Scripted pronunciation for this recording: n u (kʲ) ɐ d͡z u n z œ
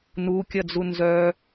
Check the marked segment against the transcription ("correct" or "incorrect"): correct